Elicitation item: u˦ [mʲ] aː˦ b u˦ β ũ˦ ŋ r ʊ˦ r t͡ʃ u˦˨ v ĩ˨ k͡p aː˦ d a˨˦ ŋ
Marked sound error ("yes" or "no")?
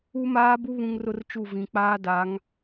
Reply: yes